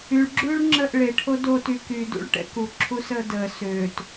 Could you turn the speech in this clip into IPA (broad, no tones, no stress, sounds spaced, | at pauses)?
y ɭ ɡ͡ǁ ʉː ɭ ŋ͡ǁ əː ʔ ɭ e ʈʰ o d o t y k y d ṵ ɭ ʈ ɛ̰ k u ǁʰ u s əː d əː s øː t